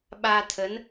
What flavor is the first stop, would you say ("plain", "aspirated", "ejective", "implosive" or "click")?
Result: implosive